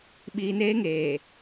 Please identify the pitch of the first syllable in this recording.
low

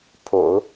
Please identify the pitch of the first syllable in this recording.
low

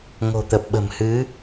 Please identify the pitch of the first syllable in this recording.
low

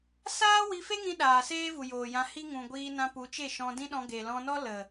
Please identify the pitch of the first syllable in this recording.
high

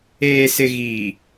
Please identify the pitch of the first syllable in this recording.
low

